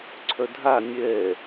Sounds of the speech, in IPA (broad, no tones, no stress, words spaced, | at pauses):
ǀʰœdʱa nʲɛ